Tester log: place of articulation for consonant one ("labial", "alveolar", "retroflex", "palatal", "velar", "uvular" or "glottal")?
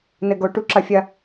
alveolar